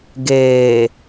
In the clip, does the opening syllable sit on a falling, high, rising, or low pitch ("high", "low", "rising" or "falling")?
low